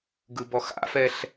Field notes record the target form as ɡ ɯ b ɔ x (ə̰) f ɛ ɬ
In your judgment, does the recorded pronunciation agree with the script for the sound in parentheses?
no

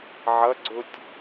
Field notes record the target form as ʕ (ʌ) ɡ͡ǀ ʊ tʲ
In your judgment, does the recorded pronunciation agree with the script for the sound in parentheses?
yes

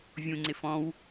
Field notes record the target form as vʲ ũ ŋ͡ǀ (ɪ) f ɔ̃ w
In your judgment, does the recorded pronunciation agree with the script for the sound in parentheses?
yes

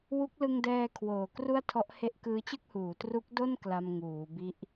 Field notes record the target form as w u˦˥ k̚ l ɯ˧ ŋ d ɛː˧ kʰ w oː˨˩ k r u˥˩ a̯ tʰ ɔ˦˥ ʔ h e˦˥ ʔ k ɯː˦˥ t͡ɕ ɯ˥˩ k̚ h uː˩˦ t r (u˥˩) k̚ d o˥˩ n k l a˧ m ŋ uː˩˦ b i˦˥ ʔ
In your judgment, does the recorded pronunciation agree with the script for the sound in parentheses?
no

